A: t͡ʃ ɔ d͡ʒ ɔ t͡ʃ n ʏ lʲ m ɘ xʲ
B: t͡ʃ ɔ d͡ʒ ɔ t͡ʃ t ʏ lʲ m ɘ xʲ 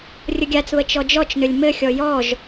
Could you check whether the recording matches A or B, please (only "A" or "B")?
A